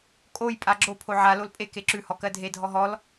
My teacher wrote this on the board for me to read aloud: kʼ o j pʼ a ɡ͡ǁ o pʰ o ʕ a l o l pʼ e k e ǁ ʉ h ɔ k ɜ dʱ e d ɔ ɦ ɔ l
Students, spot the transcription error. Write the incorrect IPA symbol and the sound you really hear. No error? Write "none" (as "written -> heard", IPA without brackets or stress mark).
d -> dʱ